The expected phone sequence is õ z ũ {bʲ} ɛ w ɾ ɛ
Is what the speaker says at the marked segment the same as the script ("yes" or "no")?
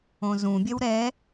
yes